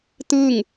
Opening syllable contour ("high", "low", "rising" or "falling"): falling